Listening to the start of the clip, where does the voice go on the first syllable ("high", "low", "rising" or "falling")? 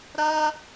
high